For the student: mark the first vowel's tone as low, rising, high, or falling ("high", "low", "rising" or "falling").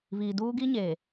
low